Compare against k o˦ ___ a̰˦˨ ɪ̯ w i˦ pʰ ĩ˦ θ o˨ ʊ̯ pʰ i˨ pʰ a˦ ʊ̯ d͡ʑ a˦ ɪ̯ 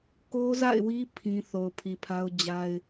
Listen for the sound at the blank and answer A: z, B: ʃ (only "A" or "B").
A